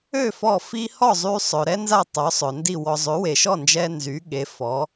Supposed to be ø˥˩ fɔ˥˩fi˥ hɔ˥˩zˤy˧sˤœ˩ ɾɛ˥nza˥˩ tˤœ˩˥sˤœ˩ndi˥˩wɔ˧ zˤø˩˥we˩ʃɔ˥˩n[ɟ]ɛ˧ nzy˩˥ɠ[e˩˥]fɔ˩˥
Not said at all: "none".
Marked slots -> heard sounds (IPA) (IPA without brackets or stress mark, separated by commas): d͡ʒ, e˩˥